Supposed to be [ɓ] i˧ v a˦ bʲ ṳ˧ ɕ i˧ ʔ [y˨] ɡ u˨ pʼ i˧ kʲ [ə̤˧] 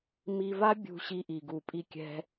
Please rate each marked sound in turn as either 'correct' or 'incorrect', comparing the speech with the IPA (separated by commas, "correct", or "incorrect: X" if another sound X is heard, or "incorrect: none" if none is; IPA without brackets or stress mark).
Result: incorrect: m, incorrect: i˨, incorrect: ɛ̤˧